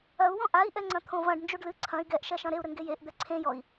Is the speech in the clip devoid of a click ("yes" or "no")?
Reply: no